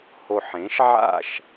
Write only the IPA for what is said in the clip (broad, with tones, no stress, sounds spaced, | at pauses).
h o˨˩ ħ ẽ˩˥ ʃ ʕ a̰˥˨ ʃ